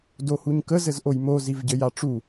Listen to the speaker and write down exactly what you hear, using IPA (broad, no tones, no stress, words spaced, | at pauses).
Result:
dohuɲkə zɘzʔojmo zivɟɘjaʈ͡ʂu